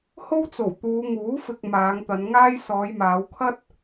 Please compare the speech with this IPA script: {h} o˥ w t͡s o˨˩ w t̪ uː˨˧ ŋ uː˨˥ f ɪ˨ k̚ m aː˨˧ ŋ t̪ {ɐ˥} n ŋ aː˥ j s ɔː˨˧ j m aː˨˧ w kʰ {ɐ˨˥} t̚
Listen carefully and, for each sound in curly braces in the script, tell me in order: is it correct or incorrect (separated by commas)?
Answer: correct, incorrect, incorrect